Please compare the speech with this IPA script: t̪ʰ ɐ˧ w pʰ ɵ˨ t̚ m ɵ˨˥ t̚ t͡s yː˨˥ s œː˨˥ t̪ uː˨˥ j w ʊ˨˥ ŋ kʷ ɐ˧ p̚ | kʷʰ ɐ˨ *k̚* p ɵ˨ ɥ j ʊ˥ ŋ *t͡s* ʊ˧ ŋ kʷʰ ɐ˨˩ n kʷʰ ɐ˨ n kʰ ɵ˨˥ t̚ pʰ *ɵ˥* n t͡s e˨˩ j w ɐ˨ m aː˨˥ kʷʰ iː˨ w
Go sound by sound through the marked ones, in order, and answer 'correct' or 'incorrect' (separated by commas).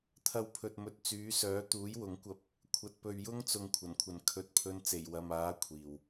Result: incorrect, correct, incorrect